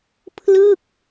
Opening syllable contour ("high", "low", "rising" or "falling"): falling